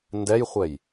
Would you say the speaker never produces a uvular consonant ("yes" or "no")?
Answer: no